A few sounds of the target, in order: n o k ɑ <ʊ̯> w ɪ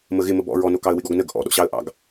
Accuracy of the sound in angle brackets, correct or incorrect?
incorrect